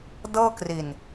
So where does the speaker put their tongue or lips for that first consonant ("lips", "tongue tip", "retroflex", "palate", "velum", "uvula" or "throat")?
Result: tongue tip